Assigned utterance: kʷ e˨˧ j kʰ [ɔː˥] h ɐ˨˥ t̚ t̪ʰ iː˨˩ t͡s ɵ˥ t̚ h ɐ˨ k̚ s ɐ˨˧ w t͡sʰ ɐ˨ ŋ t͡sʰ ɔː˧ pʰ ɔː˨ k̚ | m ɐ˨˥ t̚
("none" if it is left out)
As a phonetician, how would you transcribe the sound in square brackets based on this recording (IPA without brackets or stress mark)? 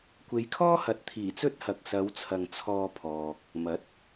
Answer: ɔː˥